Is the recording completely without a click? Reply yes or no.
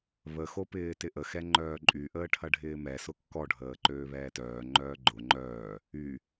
no